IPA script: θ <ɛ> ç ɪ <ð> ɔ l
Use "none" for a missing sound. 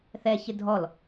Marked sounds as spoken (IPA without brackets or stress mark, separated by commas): ɛ, dʱ